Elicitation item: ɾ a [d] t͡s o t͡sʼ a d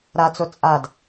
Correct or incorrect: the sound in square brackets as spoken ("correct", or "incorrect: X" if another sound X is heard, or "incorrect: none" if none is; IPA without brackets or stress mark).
incorrect: none